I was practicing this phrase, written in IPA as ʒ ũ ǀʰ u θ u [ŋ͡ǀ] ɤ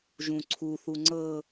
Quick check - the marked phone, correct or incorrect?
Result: correct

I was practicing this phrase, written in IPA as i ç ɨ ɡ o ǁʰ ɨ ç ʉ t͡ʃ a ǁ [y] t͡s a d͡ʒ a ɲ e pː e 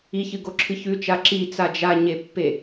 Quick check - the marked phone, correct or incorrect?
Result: incorrect: i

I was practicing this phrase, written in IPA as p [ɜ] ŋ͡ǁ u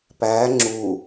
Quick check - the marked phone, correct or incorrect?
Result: incorrect: æ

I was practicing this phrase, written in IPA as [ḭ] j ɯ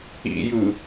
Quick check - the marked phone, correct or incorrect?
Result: correct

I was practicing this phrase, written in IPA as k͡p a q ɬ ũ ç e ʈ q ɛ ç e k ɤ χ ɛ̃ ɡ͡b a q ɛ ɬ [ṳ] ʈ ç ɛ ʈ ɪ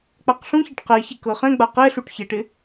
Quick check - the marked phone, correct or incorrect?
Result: incorrect: u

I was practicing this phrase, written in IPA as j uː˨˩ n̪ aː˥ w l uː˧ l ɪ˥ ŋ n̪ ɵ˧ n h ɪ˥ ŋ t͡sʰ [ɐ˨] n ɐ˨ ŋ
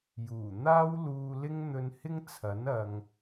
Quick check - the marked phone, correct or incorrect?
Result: incorrect: ɐ˨˥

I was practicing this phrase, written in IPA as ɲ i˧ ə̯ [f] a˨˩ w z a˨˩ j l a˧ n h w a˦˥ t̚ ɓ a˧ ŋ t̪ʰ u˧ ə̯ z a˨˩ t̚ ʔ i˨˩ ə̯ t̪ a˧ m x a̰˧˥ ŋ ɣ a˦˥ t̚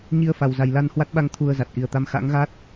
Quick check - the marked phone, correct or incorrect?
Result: correct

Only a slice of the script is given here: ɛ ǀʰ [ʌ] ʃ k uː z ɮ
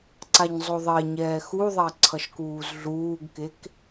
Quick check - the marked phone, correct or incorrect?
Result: correct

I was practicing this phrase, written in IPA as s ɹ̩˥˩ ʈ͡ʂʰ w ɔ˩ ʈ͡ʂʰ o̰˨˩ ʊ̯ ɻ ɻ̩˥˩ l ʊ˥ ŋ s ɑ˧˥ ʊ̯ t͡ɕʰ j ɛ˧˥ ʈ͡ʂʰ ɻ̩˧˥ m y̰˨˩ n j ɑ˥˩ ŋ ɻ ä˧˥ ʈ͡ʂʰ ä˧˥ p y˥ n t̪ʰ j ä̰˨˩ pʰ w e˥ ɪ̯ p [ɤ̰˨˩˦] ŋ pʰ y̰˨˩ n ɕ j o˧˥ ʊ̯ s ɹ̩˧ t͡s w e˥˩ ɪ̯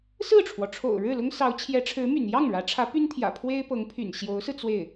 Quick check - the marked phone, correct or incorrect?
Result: incorrect: ɤ˧˥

